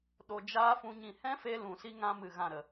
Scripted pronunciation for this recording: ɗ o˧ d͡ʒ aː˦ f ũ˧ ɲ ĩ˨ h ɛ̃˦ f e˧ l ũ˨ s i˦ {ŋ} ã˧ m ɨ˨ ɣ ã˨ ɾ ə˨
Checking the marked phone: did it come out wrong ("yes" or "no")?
no